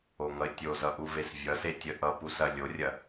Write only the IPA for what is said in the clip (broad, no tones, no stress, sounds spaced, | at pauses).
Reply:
o ŋ ʌ ɪ̯ tʲ o z ʌ ʔ u v e s vʲ ʌ s e tʲ ə ʔ ʌ p u s ɐ lʲ o rʲ ɐ